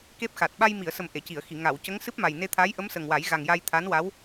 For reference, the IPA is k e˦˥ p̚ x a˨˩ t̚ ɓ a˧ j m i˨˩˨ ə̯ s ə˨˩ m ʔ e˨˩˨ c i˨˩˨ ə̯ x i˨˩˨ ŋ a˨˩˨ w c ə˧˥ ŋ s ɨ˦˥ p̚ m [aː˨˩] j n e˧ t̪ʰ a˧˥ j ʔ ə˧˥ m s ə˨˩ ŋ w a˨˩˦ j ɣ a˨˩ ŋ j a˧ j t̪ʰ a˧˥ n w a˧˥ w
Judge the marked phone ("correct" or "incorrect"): incorrect